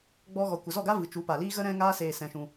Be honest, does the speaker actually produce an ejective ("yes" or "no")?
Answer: no